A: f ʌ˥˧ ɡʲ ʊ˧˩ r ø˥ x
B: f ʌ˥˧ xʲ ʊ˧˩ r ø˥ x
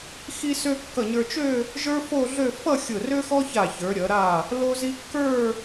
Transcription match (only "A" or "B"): B